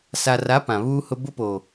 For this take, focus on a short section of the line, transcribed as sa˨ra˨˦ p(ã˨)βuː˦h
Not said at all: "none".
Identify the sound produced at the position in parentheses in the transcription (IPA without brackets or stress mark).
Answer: ã˨